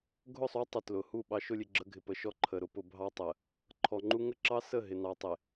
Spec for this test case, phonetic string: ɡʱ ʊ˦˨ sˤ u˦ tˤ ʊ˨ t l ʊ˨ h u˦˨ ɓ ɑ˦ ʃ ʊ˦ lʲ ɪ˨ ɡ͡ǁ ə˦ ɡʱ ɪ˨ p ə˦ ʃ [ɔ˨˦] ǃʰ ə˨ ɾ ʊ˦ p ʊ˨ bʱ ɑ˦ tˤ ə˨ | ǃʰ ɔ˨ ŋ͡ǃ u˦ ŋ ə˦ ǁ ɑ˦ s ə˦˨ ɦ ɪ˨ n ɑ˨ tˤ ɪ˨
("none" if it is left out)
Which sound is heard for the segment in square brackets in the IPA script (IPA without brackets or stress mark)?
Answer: ɔ˦